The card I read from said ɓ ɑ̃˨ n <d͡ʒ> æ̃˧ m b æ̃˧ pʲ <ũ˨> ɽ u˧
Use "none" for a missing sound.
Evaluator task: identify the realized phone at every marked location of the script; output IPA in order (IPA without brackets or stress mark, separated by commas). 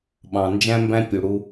d͡ʒ, u˨